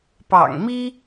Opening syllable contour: low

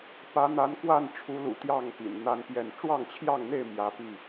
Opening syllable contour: rising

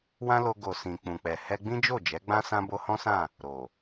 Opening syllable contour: high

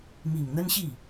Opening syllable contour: low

